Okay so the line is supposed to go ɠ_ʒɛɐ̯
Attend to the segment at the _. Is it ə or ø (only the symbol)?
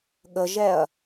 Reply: ə